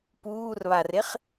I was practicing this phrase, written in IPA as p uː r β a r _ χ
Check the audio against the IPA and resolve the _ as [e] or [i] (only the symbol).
e